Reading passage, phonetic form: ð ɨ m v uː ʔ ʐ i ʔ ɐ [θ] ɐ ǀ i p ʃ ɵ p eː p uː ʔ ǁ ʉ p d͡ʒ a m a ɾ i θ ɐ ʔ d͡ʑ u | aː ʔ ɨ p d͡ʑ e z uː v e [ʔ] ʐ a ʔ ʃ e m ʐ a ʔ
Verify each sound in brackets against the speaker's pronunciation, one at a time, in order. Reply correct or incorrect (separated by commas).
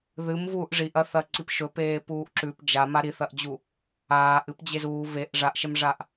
correct, correct